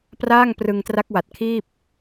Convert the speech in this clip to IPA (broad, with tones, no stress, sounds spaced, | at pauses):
p r aː˥˩ ŋ p r ɯ˧ ŋ t r a˦˥ k̚ w a˨˩ t̚ kʰ iː˥˩ p̚